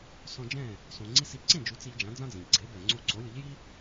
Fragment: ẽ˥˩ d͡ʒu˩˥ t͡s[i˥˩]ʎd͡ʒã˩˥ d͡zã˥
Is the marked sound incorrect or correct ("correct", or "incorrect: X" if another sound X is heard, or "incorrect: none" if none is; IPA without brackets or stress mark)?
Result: incorrect: i˧